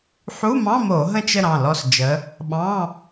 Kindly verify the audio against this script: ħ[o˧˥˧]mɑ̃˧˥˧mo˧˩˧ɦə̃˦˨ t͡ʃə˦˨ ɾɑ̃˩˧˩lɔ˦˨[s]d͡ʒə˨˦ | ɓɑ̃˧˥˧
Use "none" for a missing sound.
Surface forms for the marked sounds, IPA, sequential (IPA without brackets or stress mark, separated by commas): u˧˥˧, s